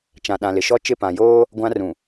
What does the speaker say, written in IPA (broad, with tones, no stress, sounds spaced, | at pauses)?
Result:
t͡ʃ ã˨ ɗ ã˨ l ɪ˨ ʃ ɔ˦ t͡ʃ ɪ˦˨ p ã˨ j oː˦ | ɡʷ ã˦ r ũ˨